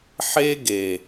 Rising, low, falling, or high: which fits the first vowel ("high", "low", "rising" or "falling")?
high